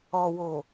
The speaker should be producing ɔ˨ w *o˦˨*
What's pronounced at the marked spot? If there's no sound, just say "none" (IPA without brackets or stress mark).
o˨